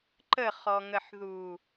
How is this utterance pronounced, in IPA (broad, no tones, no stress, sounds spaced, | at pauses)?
ǃ ə χ ɔ ŋ ə ħ ð uː